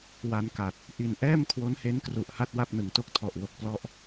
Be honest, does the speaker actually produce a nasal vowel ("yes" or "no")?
no